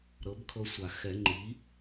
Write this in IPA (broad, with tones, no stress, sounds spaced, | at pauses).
ɾ ɤ˩˥ b kʰ ɤ˧ sʷ a˨˩ x ɛ˨˩˦ ŋ͡ǃ i˩˥